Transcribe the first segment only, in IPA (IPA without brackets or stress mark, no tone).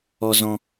ɔ